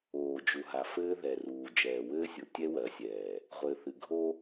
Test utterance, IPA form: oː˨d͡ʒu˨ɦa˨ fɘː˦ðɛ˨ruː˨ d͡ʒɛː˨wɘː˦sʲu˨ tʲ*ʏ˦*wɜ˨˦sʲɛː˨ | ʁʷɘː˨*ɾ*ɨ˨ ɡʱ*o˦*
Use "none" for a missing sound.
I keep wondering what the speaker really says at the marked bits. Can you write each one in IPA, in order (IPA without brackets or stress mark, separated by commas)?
ɛ˦, θ, o˦